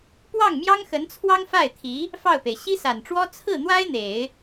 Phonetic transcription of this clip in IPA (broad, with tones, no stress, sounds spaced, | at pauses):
p w ɑ˥˩ ŋ m j ɑ˥ ŋ x ə˧˥ n t͡sʰ w ɑ˥ ŋ f a˥˩ ɪ̯ t̪ʰ i˧˥ | f ɑ˥˩ ʊ̯ p e˩ ɪ̯ ɕ i˥ s a˨˩ n ʈ͡ʂ w ɔ˥ t͡sʰ ɹ̩˥˩ n̪ w a˥ ɪ̯ n̪ e˨˩˦ ɪ̯